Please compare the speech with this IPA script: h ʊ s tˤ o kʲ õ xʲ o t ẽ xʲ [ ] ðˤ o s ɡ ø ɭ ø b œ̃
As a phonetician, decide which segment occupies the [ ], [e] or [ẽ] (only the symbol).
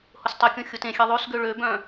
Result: e